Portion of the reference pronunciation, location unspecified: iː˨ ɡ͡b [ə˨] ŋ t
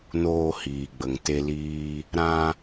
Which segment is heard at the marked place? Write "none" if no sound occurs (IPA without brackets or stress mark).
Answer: ə˨